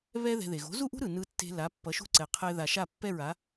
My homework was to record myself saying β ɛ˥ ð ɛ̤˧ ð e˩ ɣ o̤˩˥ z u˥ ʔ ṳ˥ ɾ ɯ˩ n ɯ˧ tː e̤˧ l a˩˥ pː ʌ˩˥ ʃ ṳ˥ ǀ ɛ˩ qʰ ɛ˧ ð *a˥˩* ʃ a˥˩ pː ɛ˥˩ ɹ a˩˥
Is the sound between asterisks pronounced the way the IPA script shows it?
no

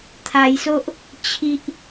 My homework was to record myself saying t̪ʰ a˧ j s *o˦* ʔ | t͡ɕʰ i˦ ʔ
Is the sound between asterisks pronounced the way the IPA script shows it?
yes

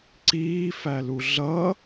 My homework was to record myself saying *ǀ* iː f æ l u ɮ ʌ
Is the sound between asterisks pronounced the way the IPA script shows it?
yes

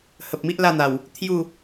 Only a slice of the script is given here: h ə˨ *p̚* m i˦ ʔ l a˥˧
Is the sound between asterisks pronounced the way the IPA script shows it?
yes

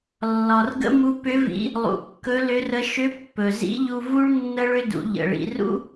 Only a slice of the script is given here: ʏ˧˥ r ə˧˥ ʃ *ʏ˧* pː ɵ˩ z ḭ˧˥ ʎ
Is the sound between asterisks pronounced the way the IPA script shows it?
no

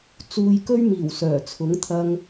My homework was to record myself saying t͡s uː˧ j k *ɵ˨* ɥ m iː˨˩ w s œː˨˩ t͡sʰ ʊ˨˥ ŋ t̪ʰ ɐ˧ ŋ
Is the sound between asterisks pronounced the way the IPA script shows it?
no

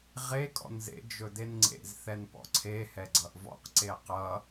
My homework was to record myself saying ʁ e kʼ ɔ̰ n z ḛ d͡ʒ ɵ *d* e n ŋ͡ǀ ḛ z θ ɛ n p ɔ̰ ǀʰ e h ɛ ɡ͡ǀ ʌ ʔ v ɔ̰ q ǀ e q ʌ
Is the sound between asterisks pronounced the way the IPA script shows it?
yes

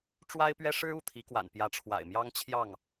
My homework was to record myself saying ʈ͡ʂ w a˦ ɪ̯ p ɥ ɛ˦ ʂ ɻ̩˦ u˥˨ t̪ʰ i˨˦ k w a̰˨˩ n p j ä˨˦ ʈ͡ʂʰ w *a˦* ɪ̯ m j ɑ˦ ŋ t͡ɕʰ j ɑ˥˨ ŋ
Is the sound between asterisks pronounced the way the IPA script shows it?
no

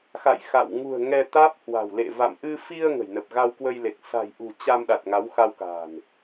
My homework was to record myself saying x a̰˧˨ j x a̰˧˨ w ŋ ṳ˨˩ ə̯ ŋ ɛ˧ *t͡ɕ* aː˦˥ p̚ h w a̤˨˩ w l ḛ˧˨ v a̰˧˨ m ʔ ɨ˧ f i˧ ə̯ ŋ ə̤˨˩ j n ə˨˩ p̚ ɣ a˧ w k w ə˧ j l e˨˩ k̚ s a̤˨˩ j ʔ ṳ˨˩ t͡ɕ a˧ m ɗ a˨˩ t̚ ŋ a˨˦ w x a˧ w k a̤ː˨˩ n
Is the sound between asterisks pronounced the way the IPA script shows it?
no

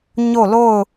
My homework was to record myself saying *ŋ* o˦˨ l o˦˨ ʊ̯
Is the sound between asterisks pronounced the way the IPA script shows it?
no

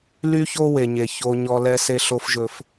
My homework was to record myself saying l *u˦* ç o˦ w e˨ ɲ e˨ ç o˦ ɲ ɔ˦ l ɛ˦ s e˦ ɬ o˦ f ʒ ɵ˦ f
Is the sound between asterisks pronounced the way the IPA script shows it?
no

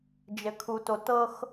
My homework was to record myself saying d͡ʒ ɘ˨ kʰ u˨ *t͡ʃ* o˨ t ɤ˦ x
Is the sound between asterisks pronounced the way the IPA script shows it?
no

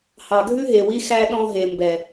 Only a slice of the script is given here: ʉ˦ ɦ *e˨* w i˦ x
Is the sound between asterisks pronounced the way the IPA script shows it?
yes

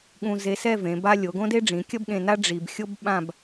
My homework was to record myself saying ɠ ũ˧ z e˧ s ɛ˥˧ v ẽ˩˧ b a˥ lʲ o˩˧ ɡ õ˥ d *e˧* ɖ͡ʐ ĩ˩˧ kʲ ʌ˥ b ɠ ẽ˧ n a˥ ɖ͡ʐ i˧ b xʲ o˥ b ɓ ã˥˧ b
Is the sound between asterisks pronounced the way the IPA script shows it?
no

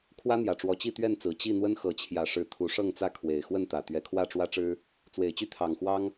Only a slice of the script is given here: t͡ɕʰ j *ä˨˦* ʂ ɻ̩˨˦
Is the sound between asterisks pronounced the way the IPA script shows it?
no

